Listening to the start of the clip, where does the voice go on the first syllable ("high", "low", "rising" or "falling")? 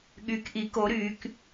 rising